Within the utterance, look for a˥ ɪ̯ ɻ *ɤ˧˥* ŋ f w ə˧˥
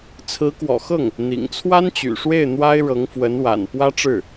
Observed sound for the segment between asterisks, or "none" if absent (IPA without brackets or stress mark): ɤ˧˥